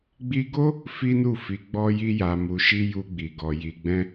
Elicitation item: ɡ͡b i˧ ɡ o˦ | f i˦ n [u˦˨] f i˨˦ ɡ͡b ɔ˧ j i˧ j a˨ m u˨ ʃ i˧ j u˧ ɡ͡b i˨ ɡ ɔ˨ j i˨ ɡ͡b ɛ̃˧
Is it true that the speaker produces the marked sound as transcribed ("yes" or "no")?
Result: yes